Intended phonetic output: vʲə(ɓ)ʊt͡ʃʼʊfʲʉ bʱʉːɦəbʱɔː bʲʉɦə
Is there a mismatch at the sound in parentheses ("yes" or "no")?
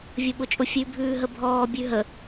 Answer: no